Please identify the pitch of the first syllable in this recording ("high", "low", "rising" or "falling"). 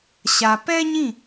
low